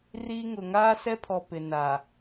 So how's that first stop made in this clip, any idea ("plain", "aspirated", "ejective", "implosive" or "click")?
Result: aspirated